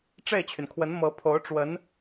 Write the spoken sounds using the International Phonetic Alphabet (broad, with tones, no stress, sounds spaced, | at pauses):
ʈ͡ʂ e˥˩ ɪ̯ t͡ɕʰ y˩ n kʰ w ə˧˥ n m ɤ˧˥ pʰ o˧˥ ʊ̯ ʈ͡ʂ w ə˧˥ n